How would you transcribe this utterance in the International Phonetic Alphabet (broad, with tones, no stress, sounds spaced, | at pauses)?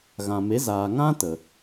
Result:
ɣ ã˨ m e˨˦ z aː˨ ŋ ã˦ t ə˨